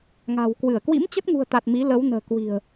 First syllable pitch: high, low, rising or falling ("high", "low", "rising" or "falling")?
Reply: low